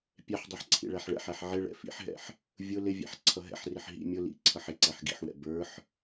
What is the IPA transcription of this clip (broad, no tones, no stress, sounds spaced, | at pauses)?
pʲ ɛ ħ dˤ ɛ ħ ǀʰ ḭ ɭ æ ħ ɭ ɛ̰ ħ æ ħ ʕ ɪ ɭ ɛ̰ f ḭ ħ ɦ ɛ̰ ħ | vʲ ʊ l ɪ vʲ æ̰ ħ ǀʰ ʌ ɦ ɛ̰ ħ r ɪ ħ ɦ ḭ mʲ ʊ l ḭ ǀʰ ʌ ħ ɪ ǀ æ ħ ɡ ḭ ħ w ɛ̰ b ə˞ ħ